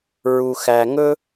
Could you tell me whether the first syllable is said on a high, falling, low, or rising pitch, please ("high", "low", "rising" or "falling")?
low